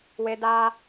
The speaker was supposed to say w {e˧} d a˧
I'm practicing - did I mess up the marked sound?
no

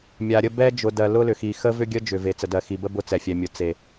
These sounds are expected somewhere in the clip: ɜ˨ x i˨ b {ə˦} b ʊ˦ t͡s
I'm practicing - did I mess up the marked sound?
no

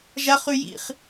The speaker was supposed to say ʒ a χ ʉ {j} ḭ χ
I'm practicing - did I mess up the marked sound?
no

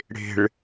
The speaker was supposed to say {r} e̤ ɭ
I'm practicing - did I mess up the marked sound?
yes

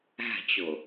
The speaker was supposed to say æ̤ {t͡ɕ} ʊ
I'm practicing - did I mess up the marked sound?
no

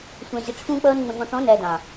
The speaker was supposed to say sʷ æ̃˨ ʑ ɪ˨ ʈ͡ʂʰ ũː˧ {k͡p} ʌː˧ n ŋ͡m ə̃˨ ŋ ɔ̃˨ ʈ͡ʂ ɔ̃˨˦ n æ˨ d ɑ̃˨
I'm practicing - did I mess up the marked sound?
no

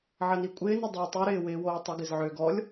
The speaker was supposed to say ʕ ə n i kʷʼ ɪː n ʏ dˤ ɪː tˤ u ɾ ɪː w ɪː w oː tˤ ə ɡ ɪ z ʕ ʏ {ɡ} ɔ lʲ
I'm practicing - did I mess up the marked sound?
no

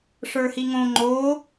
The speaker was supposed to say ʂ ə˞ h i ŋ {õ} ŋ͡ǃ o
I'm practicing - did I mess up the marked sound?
no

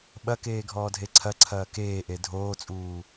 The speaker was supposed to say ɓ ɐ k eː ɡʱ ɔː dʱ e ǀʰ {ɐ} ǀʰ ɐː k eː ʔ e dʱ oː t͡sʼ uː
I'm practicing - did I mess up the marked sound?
no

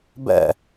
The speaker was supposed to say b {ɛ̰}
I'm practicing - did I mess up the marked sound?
no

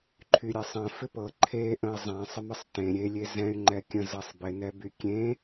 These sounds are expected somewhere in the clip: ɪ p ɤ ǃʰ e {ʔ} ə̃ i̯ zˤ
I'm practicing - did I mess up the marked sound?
no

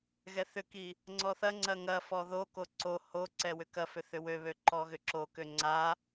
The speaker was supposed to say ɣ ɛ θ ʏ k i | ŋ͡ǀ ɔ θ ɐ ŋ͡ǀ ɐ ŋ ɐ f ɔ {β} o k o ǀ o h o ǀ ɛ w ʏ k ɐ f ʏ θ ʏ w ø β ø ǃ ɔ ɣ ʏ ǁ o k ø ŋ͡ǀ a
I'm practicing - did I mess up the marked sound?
yes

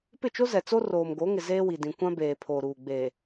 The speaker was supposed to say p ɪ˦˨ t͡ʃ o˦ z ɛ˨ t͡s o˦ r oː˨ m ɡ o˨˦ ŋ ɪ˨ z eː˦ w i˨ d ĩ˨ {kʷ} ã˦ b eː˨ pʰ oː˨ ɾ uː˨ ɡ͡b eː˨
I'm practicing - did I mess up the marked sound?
no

